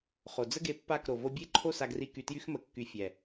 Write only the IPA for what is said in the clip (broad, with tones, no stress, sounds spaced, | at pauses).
χ o˨ d͡z ə˦ ɡ e˧ pː a˦˨ k ɾ o˨ v o˧ bʲ e˦ ǃʰ o˦ s a˧ ɡ r i˧ k y˨ t j y˧ x m ə˨ kː y˨ fʲ ɛ˨